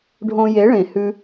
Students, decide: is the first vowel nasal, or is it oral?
nasal